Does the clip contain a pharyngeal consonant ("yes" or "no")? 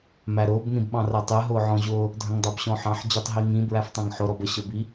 yes